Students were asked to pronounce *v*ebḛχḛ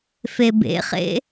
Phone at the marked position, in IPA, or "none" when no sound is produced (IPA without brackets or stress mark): f